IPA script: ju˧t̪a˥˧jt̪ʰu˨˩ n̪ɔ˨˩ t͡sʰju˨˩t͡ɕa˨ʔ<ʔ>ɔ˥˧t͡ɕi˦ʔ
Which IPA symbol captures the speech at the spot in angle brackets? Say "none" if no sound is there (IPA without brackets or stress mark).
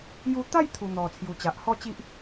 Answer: h